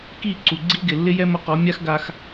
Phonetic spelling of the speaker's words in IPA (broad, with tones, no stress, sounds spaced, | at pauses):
k i˦˨ ǀ u˨ ɡ͡ǀ i˦ ɡ ɪ˨ lː ɪ˦ j ɛ˦ m ʊ˧ q ɔ˨˦ mʲ a˦ x ɡ a˧ x